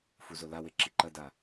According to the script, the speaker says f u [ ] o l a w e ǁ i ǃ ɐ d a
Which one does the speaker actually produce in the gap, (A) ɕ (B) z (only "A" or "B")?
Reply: B